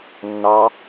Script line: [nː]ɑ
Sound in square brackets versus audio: correct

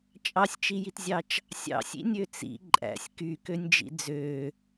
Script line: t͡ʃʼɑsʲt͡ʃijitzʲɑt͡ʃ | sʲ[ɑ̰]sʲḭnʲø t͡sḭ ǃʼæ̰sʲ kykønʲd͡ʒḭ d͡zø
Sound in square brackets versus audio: correct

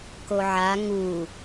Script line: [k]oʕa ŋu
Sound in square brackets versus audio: correct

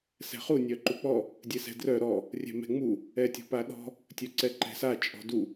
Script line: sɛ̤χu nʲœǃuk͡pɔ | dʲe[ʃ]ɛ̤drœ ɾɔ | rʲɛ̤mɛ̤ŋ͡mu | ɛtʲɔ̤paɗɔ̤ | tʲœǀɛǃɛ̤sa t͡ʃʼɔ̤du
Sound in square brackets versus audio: incorrect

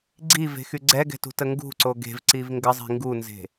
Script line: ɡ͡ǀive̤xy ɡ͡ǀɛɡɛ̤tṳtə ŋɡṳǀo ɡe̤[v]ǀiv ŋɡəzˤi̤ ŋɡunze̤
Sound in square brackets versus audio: correct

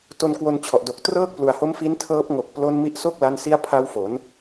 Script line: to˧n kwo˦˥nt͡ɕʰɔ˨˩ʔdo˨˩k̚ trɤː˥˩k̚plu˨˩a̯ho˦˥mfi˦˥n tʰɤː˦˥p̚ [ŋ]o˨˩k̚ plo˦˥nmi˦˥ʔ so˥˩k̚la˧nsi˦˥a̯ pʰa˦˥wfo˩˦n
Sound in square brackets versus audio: correct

